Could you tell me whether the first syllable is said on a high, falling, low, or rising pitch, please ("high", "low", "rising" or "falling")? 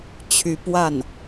rising